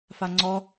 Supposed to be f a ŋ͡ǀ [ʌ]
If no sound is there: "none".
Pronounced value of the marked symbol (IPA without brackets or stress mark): ɔ